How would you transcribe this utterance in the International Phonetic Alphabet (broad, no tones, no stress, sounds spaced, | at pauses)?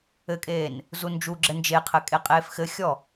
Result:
ɘ kʼ eː n | z u n d͡ʒ u ɡ͡ǁ ɘ n d͡ʒ e qʰ ɘ kʼ e qʼ eː f x ɘ xʲ ɔ